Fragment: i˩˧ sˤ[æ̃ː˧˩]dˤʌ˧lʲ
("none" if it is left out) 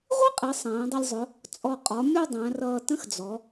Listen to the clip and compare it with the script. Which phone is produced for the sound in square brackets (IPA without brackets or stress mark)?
æ̃ː˩˧